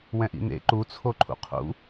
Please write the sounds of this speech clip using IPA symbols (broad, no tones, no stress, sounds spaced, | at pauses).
w ɛ̃ ʔ ḭ n̪ ḛ ǃ u t͡sʰ o ǃʰ ṵ qʰ ṵ